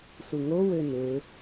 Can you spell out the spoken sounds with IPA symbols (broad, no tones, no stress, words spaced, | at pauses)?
suŋo wønø